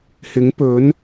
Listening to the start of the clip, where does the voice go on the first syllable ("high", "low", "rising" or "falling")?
rising